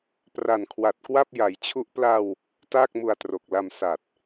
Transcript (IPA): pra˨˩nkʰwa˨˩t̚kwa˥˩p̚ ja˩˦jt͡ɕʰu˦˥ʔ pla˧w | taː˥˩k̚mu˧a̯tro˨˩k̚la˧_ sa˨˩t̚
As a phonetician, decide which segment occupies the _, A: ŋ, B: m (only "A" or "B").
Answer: B